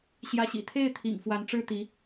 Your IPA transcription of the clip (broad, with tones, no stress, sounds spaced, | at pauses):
ɕ j ä˧˥ ɕ ḭ˨˩ t̪ʰ e˥˩ ɪ̯ t̪ʰ ḭ˨˩ ŋ f w a˧˥ n ʈ͡ʂ ɻ̩˥ t̪ i˧˥